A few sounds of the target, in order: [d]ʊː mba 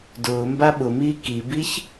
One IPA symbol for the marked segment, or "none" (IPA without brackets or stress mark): d